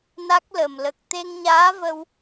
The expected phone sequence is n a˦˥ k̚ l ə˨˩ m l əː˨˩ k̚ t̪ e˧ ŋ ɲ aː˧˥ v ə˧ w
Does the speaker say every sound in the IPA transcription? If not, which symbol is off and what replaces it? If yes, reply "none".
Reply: əː˨˩ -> ə˨˩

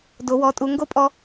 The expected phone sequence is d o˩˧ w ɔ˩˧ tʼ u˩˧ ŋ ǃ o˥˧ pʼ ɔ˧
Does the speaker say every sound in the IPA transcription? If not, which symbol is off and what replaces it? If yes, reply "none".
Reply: ǃ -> ɡ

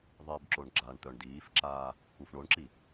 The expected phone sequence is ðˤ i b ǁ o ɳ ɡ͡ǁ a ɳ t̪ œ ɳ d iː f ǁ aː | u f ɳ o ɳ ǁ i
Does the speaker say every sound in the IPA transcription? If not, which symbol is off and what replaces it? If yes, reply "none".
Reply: none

